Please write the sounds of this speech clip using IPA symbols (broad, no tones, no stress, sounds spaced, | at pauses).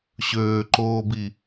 ɕ øː ǃ oː b i